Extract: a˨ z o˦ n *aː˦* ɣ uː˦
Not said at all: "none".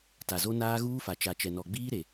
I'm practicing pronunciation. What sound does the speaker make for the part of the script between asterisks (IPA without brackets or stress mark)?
aː˦